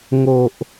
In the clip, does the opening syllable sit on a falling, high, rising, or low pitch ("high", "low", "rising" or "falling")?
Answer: high